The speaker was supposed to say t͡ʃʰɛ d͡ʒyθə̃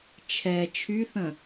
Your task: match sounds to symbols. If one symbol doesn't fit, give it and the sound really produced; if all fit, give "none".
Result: d͡ʒ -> t͡ʃʰ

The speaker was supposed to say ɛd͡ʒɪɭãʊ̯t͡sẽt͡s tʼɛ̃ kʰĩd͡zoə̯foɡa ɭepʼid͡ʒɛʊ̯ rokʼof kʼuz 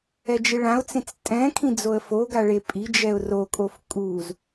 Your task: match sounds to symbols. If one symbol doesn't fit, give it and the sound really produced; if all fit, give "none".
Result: none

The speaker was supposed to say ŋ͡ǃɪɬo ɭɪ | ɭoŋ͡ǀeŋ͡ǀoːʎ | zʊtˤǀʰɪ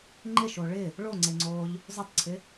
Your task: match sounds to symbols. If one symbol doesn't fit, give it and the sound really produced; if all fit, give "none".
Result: ɬ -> ʃ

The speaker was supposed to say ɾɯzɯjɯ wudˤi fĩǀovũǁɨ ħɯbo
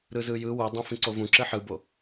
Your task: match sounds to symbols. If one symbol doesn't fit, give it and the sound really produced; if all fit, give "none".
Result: i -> ĩ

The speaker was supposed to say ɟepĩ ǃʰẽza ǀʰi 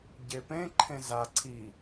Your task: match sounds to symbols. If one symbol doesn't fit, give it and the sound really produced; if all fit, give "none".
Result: ĩ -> ẽ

